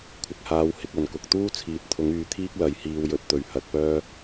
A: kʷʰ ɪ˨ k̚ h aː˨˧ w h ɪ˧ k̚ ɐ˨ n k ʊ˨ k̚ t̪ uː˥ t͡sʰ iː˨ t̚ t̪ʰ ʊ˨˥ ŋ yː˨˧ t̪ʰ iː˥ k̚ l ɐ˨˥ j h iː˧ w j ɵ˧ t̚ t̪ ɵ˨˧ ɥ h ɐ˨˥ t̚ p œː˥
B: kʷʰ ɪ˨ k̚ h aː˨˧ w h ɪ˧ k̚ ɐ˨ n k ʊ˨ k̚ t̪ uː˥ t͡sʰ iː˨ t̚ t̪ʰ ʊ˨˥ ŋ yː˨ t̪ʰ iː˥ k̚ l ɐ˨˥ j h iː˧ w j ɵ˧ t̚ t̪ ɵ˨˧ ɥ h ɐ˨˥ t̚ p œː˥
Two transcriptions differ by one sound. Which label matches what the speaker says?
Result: A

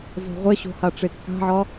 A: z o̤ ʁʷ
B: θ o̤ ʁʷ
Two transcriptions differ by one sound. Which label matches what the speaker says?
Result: A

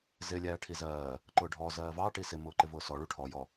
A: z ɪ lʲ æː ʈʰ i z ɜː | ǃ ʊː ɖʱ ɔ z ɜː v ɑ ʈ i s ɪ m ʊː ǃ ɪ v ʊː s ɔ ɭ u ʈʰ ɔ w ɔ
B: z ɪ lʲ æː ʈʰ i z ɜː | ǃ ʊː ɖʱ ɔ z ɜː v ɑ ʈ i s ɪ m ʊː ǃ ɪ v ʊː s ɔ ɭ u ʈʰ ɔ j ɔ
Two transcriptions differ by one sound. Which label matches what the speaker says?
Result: B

